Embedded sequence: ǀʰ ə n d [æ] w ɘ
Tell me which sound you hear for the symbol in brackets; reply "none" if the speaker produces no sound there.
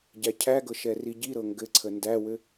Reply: æ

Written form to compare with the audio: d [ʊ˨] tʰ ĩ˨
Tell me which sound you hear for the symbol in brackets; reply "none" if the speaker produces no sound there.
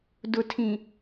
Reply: ʊ˨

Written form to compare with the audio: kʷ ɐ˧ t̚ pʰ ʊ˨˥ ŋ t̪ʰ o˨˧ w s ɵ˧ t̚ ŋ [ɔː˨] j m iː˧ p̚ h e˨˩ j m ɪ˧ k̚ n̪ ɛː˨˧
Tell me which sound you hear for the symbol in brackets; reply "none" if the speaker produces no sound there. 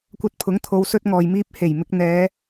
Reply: ɔː˨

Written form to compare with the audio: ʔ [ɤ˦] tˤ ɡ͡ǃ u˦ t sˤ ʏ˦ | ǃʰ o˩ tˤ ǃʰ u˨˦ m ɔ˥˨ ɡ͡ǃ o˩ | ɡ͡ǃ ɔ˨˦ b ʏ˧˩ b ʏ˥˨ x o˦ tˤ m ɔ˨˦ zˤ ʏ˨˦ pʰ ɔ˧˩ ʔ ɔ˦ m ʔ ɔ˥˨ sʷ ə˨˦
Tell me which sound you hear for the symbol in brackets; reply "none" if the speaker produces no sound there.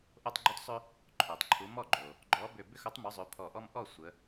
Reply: o˦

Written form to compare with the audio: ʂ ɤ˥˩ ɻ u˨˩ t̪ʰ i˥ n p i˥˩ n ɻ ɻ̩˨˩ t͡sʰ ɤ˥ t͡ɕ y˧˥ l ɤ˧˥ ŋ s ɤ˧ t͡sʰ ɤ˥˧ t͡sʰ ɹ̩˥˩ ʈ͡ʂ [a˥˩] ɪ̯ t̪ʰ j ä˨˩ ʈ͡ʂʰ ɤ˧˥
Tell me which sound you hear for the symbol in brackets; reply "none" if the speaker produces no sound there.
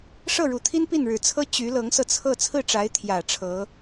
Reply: a˧˥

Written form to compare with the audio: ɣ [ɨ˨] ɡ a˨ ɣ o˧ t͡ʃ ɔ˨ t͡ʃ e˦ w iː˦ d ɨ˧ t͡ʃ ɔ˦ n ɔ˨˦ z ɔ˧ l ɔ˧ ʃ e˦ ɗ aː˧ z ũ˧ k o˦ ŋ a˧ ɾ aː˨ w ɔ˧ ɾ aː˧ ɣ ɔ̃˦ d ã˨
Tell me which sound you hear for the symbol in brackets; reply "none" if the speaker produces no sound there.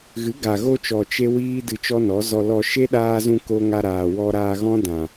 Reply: ɨ˨˦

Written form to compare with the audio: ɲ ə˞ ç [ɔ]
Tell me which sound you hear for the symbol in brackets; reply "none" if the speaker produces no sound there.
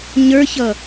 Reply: ʌ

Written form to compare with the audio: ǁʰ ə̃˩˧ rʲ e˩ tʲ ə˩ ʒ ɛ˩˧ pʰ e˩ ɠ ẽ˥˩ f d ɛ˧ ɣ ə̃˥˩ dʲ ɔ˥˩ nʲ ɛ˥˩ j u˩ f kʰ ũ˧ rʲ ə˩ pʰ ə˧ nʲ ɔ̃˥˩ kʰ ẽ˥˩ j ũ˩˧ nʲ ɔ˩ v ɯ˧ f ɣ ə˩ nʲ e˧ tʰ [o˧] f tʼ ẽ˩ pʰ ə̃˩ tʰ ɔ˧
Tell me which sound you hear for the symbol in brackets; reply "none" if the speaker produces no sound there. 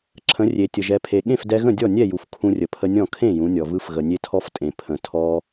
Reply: ɔ˧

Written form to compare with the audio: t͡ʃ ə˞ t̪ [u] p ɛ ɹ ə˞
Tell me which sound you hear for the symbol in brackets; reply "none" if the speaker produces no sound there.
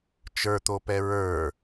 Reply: o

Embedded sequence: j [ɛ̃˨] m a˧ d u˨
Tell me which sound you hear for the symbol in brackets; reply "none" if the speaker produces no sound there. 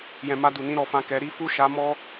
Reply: ɛ̃˨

